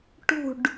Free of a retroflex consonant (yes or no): no